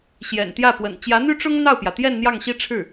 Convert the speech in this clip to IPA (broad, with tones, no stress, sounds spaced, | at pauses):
ɕ j ɛ̰˨˩ n t̪ j ä˥˩ p w ə̰˨˩ n t͡ɕ j ä˧˥ n̪ y˥ ʈ͡ʂ ʊ˥ ŋ n̪ ɑ˥˩ ʊ̯ p j ä˩ t̪ j ɛ˥˧ n n̪ j ɑ˥˩ ŋ ɕ i˥ ʈ͡ʂʰ ɻ̩˥˩